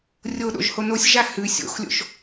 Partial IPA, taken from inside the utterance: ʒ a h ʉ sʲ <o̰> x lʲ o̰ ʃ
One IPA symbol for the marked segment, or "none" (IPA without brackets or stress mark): o̰